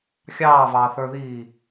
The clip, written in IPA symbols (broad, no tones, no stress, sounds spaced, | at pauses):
xʲ ɑː v ɑː θ ə˞ ð iː